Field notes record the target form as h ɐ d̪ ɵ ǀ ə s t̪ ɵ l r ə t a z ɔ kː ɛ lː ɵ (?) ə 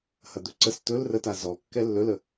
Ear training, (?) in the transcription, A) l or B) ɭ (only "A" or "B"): A